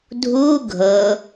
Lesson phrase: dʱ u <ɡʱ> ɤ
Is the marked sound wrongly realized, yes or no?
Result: no